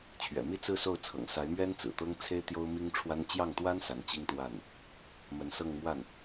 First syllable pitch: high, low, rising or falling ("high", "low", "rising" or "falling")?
low